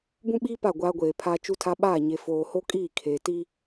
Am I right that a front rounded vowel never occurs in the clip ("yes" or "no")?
yes